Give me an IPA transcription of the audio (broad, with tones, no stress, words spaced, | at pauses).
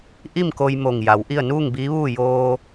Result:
ʔi˥˨mko˧j mo˧˩ŋja˩˧w ʔi˥˨ə̯ nuː˥˨ŋ biː˧˥ʋuː˥˨ joː˧